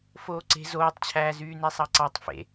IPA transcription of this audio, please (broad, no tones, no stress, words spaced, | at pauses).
foːǀe̤ zoːtˤt͡ɕʰæː zyːnesˤɑǀɑtˤ fḛ